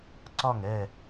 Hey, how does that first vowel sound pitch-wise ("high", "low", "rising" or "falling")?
falling